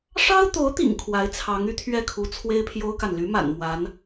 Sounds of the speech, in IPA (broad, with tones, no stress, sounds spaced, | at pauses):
ʂ ɑ˥ ʊ̯ t̪ o˧˥ ʊ̯ t̪ ḭ˨˩ ŋ kʰ w a˧˥ ɪ̯ t͡sʰ ɑ˧˥ ŋ y˧˥ t̪ʰ ɥ ɛ˥˩ kʰ u˧˥ t͡sʰ w e˥ ɪ̯ pʰ j o˥ ʊ̯ k a˨ n l y˧˥ m a̰˨˩ n m w a˧˥ n